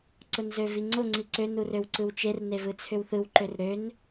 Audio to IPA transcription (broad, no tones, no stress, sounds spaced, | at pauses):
ǀ ʊ n z ø v i ŋ͡ǀ ʊ ŋ͡ǀ i ǀ ø n u r ø w ǀ ɯ w t͡ʃ e r n e v ɯ t͡sʰ ʏ w θ ɯ w ǃ ø r ɾ ø n